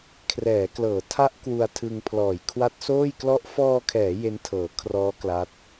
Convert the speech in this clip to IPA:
kʰ r ɛː˩˦ k l ɤː˩˦ tʰ a˦˥ ʔ k w u˧ a̯ tʰ ɯ˧ ŋ pʰ l ɔː˨˩ j kʰ w a˦˥ t̚ s oː˥˩ j k l ɔ˥˩ ʔ f ɔː˧ kʰ ɛː˩˦ j e˦˥ n tʰ ɤː˩˦ kʰ r ɔː˦˥ k l a˦˥ t̚

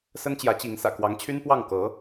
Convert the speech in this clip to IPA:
s ə˥ n t͡ɕ j ä˧˥ t͡ɕ i˧˥ ŋ s ä̰˨˩ k w ɑ˧˥ ŋ t͡ɕʰ y˥ n p w ɑ˥˩ ŋ k ɤ˧˥

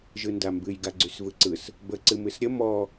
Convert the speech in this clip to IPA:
ʒ ɯ n d a m b ɨ j ɡ a ɡ͡ǀ y s v ɯ ǀ ɯ s | b ə ǀ ɨ m ɨ s ɾʲ ə m ɔ

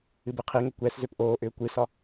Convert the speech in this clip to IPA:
ɨ b ɨ qʰ i ŋ ʏ kʷ ɛ s z ø p ʔ oː ʔ ʏː kʷ ɨ s ɒ

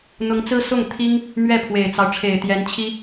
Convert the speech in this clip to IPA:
n̪ ʊ˧˥ ŋ t͡s ɹ̩˥ s ʊ˥˩ ŋ t̪ʰ i˥ ŋ | m ɥ ɛ˥˩ pʰ w e˨˩ ɪ̯ t͡s ɑ˦ ʊ̯ ʈ͡ʂʰ e˨˩ ɪ̯ t̪ j ɛ˧˥ n t͡ɕʰ i˥

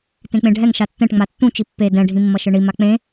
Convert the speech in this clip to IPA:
t ẽ k͡p ẽ ɖʱ ɛ ŋ ʃ a tː ɛ̃ ʈ ŋ͡m a tː ũ t͡ʃ i pː e d ɛ̃ ɖʱ ĩ mː ʌ ʃ ɯ ɳ i m a k͡p ẽ

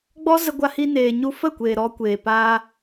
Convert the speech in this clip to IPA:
ɡ͡b ɔ˦ z ə˧ ɡʷ a˧ h i˦ n eː˧ ɲ u˦ f ə˦˨ kʷ eː˨ ɾ ɔ˧ kʷ eː˨ p aː˧

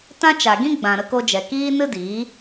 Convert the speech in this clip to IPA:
t ã˦ t͡ʃ a˨ ɡ ĩ˦ ɡ͡b ã˨ ɾ ə˧ k o˧ d͡ʒ ɛ˨ k iː˦ n ɨ˦ d iː˨˦

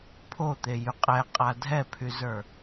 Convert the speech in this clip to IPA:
pʰ o t̪ e j y qʼ ɛ qʼ a dʱ ɛ pʰ y z ə˞

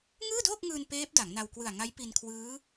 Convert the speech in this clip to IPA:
ŋ ɯː˥˩ d oː˥˩ k̚ ŋ ɯː˧ n p eː˦˥ p̚ d a˩˦ ŋ n a˧ w k w ɯ˨˩ a̯ ŋ a˦˥ j p i˧ n kʰ w ɯː˦˥

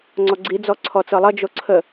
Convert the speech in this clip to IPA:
ŋ͡ǀ ɔ ɡ͡ǀ i d͡z ɔ ǀʰ ɔ t͡s ɤ lˠ ʌ d͡ʒ o ǀʰ ə

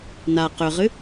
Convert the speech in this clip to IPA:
n a q ø ʁ ɨ

